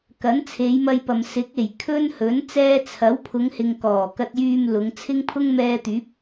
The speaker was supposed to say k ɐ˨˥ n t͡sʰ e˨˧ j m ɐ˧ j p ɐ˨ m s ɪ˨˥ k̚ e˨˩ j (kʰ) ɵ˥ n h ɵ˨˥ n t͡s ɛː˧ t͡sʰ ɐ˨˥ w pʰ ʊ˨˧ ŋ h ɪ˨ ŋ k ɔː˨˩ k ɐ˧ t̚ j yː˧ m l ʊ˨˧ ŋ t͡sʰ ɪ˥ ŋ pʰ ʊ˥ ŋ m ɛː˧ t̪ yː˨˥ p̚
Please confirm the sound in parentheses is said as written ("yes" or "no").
yes